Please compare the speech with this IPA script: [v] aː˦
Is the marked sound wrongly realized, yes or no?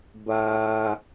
yes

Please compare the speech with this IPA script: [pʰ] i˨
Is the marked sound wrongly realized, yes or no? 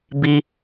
yes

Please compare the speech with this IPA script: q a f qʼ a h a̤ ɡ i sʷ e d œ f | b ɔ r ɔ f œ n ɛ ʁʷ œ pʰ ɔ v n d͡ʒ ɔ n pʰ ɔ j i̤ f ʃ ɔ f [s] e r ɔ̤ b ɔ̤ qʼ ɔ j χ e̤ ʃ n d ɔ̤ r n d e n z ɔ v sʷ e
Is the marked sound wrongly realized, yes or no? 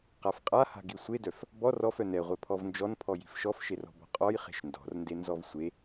yes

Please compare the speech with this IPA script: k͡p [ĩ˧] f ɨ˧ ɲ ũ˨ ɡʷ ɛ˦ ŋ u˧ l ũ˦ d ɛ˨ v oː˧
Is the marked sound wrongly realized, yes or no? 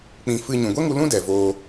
no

